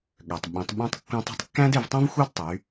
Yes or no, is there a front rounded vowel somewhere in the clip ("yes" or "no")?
yes